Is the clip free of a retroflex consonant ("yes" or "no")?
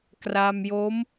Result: yes